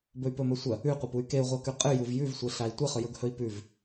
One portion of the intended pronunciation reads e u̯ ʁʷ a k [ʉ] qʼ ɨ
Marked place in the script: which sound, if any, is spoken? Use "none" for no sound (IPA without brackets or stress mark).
ʉ